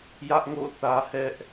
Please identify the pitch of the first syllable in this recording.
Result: high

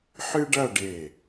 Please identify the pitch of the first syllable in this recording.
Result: high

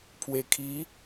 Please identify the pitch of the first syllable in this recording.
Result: low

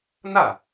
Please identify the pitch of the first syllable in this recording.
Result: falling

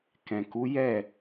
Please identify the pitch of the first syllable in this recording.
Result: low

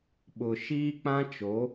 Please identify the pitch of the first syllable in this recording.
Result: low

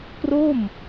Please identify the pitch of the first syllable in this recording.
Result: falling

